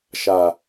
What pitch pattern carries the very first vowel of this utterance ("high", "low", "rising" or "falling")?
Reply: low